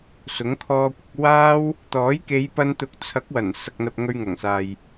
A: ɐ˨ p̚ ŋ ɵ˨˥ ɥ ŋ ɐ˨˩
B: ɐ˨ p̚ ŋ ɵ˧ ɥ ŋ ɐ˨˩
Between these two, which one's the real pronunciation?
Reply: B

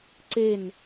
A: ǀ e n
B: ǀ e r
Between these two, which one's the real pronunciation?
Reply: A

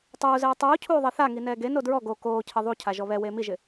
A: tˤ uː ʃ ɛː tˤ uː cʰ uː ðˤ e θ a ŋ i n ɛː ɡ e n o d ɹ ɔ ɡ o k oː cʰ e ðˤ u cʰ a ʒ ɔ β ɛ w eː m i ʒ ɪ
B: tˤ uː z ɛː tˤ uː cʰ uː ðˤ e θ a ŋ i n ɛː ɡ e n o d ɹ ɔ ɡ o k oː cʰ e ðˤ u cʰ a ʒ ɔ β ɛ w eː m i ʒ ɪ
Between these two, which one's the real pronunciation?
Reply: B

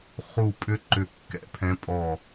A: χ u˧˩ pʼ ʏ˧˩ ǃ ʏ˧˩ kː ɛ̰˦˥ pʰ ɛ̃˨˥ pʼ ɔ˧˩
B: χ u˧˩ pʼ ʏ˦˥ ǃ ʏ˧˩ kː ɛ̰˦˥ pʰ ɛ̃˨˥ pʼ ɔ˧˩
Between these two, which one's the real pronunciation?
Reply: B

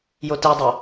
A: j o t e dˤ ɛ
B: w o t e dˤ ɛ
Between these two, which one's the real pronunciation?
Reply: A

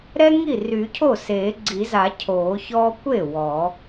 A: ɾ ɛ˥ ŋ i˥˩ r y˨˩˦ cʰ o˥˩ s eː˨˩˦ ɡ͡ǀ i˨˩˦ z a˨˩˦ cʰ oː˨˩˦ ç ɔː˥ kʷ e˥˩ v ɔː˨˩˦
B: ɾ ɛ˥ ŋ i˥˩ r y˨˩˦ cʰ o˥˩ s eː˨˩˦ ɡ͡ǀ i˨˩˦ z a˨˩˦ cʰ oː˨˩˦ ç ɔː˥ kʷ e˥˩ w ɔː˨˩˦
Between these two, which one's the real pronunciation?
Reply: B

